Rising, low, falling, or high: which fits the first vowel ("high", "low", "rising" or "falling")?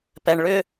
low